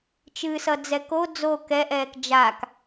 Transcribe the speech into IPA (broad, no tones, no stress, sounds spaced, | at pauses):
t͡ʃ ɨ s ʌ d͡z ɛ k o d͡z o k ɛ ʔ ɛː k d͡ʒ a k